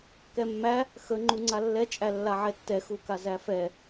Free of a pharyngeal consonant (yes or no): no